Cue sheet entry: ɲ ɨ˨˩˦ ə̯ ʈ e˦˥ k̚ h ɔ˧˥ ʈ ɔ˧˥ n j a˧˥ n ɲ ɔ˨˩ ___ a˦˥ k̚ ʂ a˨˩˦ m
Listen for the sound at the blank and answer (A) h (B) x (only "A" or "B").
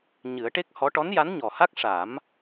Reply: A